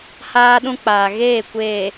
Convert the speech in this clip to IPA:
h aː˦ ɗ ũ˦ k͡p aː˨ ɣ eː˦˨ kʷ eː˨

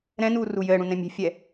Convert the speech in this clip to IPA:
ɾ ɛ̃ n uː r u j ɘː ɽ ũ n ɛ̃ mʲ e̤ fʲ ɛ

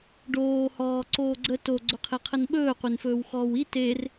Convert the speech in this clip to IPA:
ɖ oː h ɔː ǀ oː ɡ͡ǀ ə t o ɡ͡ǀ ɵ qʰ e qʰ ə n ɓ ɵː qʷ e n f ɵː w x ɔː w i t e r

